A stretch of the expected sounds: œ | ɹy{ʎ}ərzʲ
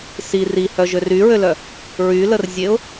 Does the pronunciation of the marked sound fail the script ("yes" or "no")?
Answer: yes